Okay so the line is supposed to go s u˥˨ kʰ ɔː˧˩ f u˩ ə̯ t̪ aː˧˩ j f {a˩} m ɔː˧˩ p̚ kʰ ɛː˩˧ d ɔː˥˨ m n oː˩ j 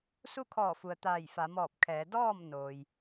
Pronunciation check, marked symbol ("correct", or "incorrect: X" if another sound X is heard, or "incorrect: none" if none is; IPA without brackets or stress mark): incorrect: a˩˧